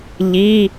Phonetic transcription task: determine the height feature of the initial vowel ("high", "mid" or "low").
high